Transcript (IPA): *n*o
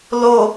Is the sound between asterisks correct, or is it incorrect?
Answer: incorrect